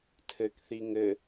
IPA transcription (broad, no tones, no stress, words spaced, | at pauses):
tʰɘkθi ŋɘ